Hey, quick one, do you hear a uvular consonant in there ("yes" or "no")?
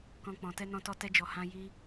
no